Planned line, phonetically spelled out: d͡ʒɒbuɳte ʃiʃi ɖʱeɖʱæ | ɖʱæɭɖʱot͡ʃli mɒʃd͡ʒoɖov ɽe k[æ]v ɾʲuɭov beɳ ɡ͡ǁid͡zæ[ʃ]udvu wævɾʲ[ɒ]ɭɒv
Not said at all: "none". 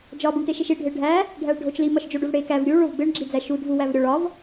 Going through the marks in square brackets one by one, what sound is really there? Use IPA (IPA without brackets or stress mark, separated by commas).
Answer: æ, ʃ, ɒ